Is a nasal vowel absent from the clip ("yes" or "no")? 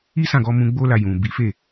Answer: no